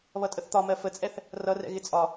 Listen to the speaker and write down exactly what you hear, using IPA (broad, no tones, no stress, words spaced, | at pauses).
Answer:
βʌtʼəθt̪ɒmɜ fət͡sʼɛθ | rʌrɛ̰ ɣɪt͡sʼɒ